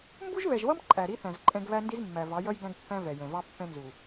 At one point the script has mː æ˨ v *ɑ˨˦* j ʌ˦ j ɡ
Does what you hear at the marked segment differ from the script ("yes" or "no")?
no